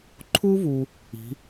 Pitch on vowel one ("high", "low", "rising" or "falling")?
high